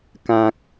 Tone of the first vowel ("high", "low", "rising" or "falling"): low